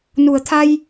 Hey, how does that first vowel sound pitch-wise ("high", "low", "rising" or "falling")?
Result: low